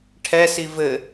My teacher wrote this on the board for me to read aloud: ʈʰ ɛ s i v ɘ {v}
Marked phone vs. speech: incorrect: none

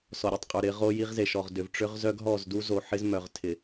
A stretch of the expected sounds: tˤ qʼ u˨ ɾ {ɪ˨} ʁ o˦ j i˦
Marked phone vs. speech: incorrect: ɪ˨˦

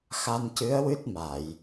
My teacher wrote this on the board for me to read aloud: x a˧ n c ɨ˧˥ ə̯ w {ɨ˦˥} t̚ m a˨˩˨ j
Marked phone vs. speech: correct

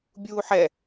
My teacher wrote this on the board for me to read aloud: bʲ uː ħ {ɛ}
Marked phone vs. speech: correct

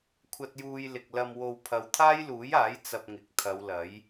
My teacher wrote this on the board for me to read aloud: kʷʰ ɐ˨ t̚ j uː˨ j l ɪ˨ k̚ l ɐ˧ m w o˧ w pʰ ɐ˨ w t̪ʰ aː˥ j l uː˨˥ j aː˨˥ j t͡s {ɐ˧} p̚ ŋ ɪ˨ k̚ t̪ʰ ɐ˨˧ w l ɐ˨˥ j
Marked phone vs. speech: correct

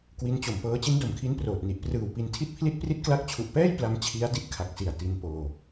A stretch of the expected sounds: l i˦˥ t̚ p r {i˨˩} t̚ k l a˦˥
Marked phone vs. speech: incorrect: i˦˥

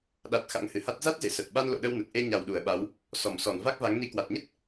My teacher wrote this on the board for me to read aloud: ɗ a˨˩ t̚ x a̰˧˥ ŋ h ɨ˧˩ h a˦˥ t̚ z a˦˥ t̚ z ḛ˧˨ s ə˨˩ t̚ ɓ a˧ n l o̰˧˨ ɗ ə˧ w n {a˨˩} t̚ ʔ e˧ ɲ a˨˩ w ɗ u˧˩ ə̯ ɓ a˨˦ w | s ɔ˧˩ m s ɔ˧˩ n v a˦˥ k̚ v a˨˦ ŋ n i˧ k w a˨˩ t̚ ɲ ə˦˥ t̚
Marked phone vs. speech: incorrect: ə˨˩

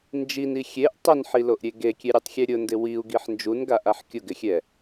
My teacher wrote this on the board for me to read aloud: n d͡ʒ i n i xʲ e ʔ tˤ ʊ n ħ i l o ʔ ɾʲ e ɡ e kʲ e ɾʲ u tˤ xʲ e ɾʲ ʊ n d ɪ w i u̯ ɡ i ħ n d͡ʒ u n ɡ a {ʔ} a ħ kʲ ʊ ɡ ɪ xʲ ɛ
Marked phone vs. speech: correct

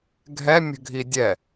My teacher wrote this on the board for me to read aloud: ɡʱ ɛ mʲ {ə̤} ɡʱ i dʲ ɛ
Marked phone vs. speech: correct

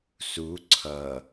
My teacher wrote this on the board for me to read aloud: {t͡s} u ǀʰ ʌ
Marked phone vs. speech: incorrect: s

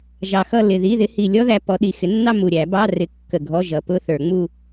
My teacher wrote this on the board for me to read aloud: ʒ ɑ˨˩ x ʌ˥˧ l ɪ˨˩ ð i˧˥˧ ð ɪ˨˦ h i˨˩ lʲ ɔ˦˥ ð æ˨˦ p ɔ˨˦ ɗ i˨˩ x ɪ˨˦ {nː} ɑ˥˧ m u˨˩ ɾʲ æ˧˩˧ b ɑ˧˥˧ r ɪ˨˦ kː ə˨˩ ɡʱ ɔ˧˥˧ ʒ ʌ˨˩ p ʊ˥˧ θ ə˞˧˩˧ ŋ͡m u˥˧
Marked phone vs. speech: correct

